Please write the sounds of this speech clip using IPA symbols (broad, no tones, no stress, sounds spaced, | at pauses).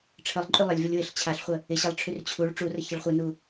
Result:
ʈ͡ʂʰ ə lˠ ǃʼ y lˠ ɪ lʲ v ə lʲ w ɪ ɬ t͡ɕʰ a ɬ χʷ ə | ɪ ɕ ə lˠ ʈ͡ʂʰ y r t͡ɕʰ u ɭ ʈ͡ʂ u r ə ç ə ɭ χʷ ɨ n u